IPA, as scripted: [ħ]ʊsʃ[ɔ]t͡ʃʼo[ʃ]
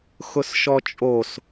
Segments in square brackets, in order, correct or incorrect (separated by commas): incorrect, correct, incorrect